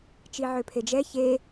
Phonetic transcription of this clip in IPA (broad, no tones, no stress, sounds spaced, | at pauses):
t͡ʃ i ʕ ø pʰ e d͡ʒ ɛ ç e